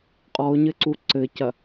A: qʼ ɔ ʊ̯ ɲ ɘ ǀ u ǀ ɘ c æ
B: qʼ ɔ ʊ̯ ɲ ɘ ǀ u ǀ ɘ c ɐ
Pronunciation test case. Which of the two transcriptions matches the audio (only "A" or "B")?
B